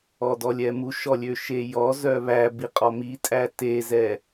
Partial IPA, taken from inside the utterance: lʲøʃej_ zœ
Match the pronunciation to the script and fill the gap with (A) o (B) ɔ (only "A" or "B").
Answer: B